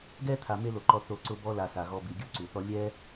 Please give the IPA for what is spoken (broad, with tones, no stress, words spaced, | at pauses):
ɡɛ˥t̪ʰa˨ me˦lo˩ǃɔ˨ θo˨ ǀʊ˦bɔ˦ la˨sa˩ɣɔ˨bi˩ ɡʲu˥ǀu˩θɔ˦ lʲɛ˥